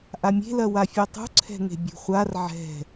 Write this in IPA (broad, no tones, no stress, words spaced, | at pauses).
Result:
ʔamʲe̤lɐ wafʲetˤṳ ǀʰɛ̤ŋe̤bʲṳχʷar ʕɛ̤